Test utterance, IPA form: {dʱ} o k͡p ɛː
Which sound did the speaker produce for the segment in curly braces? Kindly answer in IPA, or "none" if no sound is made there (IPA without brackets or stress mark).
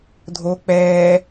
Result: dʱ